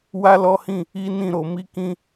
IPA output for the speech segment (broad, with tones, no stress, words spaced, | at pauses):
wa˦lɔ˦hĩ˦˨ | i˦nĩ˦˨ɾo˧ mi˦kĩ˦